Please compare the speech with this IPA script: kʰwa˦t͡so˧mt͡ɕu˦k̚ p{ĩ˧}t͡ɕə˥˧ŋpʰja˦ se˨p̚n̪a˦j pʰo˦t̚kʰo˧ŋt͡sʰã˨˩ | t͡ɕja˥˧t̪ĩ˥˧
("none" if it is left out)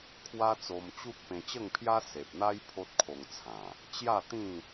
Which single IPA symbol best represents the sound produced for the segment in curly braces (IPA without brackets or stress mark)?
ẽ˧